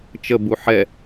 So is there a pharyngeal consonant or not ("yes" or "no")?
yes